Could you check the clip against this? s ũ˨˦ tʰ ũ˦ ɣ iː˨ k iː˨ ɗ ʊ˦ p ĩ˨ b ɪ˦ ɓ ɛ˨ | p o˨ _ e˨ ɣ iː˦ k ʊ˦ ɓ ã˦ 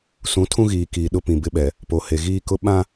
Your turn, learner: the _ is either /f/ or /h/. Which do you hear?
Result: h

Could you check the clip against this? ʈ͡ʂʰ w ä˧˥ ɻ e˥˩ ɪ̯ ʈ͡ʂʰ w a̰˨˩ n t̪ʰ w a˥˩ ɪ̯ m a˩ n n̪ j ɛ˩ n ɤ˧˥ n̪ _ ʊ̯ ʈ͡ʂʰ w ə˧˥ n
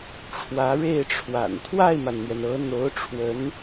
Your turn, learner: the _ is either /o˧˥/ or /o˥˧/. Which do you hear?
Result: o˧˥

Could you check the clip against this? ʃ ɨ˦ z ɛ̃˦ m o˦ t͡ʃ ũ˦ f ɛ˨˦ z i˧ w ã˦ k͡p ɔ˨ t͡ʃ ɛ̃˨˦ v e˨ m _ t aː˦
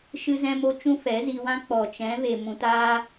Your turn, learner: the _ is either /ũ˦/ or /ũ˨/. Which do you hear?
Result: ũ˨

